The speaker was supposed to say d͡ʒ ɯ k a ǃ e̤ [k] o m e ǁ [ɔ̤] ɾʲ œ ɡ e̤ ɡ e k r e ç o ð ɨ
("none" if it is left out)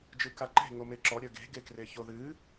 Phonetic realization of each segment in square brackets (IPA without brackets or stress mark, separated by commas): ŋ, ɔ